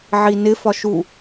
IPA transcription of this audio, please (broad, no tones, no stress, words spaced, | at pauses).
ʕinɪ fɒʃu